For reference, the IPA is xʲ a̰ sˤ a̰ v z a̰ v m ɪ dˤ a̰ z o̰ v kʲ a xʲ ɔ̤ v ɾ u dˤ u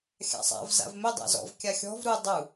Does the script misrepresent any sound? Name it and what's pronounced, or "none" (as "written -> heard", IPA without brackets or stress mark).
o̰ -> ɔ̰